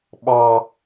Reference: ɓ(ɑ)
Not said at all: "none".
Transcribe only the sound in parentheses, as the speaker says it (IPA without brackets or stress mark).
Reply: ɑ